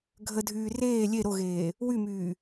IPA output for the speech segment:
ɡʱədʱyː reː lʲe ɾoɣeː | wymyː

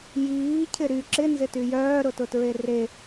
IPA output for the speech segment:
jiːcʰɪ ɾy ǁɪnzɪty jœːɾʊtʊtɹe re

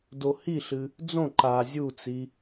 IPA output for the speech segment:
dohiɬɨ | d͡zõ ǃa zʲut͡si

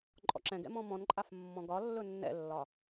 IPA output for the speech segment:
ǃʼɔ̰ǁɛ̃ɡɛ̰ mɔ̃mɔ̃nǃʼaf mːɔ̃ɡɒ lːɵnːɛ̰lːɒ

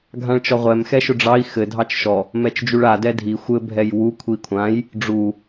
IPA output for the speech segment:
ɡʱãɭt͡ʃɔʁʷɛm xɛʃʊɖ͡ʐɑi̯ xɘ dʱɑt͡ʃʃɔ | mɛt͡ʃd͡ʒuɭa dɛdʱi xʷɘ bʱɛjwu kʷʰikʷʰãj | ɖ͡ʐu

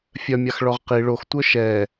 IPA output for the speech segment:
fʲœmʲaxɭɔʁ qi ɭoxtʷœ ʃɛ

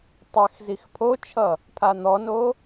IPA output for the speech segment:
tˤɛx zixpʰot͡ʃʰʌ | pʰan̪ɔno

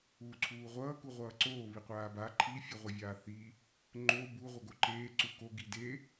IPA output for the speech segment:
uːǀʰuːʁʷʌː kuʁʷʌːǀoː βiqʷaːba ǃʰi fʲʌʁʷʌvʲaːθi | ŋ͡ǃo bu ʁʷʌɡoǃeː ǀuko ɡide

